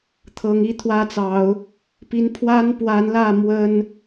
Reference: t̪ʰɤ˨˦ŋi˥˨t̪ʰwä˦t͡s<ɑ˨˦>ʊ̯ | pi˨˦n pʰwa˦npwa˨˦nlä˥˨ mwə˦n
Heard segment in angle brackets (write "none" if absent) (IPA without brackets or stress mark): ɑ˨˦